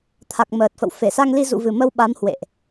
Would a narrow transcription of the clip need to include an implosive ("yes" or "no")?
yes